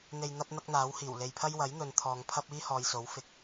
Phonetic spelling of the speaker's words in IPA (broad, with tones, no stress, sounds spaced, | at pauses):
n̪ e˧ j n̪ ɐ˥ p̚ n̪ ɐ˥ k̚ n̪ aː˨˥ w h iː˨˩ w l e˨ j pʰ ɐ˥ j w ɐ˨˥ j n̪ ɵ˨˧ n t̪ʰ ɔː˨ ŋ pʰ ɐ˥ p̚ iː˥ h ɔː˨ j s o˨˥ w f ɪ˨˥ k̚